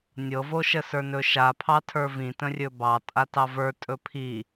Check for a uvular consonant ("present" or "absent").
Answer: absent